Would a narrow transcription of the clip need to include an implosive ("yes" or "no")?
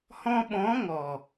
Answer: yes